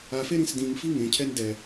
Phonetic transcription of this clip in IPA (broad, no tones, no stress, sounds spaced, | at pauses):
a f e ɾ ĩ s d ĩ ŋ f i ŋ ẽ cʰ ɛ n d ɛ